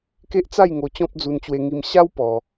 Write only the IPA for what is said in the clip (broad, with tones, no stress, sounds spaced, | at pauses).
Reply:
k e˦ ʔ t͡s a˥˧ j ŋ o˧ t͡ɕ ɔ̃˦ p̚ d͡z u˧ n t͡ɕ w e˧ ŋ i˧ m ɕ a˦ w p ɔ˧